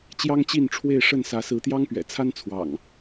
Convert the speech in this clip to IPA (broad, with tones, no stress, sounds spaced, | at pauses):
t͡ɕ j ɑ˦ ŋ t͡ɕ i˥˨ n ʈ͡ʂʰ w e˥˨ ɪ̯ ʂ ə˥˨ n s ä˨˦ s ɹ̩˨˦ t̪ j ɑ˦ ŋ p ɥ ɛ̰˨˩ t͡sʰ a˦ n t͡sʰ w ɑ̰˨˩ ŋ